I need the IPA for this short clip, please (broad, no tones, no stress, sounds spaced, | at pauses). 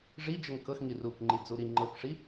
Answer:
ʐ i d͡ʒ ə ŋ k ɤ x ŋ i r u k ŋ͡ǃ i d͡z u ɾ i ŋ͡ǃ ɤ k ʂ i